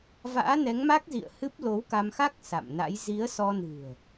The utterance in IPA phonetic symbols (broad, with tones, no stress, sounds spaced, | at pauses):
v a̰ː˧˥ n ɛ˨˦ ŋ m a˦˥ k̚ z ḭ˧˨ ə̯ h ɨ˦˥ p̚ l o˨˦ w k a˧ m x a˦˥ k̚ s a̰˧˨ m n a̰˧˥ j z i˨˦ ə̯ s ɔ˧ n ɨ̤˨˩ ə̯